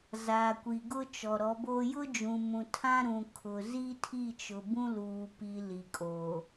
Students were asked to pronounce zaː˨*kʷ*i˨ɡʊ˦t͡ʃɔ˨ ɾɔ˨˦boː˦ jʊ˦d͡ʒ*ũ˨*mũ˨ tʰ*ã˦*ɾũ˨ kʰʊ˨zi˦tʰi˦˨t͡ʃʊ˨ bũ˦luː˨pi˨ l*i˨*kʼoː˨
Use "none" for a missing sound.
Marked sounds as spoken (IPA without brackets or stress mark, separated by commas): kʷ, ũ˨, ã˦, i˨